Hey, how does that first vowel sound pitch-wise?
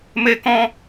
high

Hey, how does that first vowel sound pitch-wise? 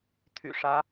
low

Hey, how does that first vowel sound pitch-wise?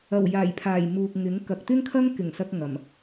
low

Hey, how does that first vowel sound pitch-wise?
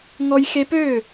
high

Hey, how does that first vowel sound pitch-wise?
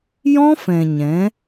high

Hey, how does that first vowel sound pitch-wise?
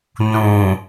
low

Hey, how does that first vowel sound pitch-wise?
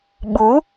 rising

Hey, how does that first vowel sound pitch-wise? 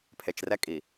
low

